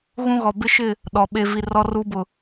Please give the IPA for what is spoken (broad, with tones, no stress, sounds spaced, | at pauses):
ɣ ũ˦ ɣ ɔ˨ b ɪ˦ ʃ ɪ˦˨ | ɗ ɔ˨ ɓ e˦ v i˦ r ɔ˦ r u˦ b ʊ˨